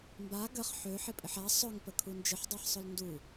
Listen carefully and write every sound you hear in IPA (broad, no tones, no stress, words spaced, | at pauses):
mba ɡəχ ħø ħɪpʼɪħa sˤœŋpə kʰund͡ʒɪħdˤaħsˤʊl ndu